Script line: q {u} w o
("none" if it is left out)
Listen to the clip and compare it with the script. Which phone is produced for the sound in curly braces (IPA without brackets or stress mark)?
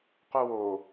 u